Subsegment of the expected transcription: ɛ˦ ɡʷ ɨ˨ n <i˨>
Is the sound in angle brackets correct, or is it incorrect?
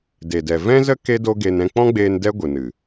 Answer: incorrect